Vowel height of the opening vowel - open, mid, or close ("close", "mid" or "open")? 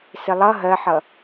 close